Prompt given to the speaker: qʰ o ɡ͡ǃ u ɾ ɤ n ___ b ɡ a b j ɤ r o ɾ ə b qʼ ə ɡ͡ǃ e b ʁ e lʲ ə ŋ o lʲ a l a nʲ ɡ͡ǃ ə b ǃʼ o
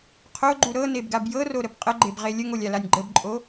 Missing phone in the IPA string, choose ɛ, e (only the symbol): e